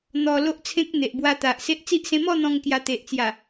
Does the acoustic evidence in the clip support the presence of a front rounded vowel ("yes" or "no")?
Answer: no